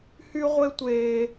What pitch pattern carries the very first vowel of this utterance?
high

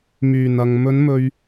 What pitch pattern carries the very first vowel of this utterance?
low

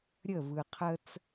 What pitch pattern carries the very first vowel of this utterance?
falling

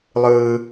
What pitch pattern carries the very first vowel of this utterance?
high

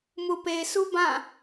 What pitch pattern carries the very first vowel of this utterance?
low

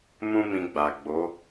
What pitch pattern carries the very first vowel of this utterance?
high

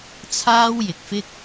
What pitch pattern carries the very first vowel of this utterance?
high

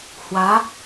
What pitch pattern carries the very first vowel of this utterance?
rising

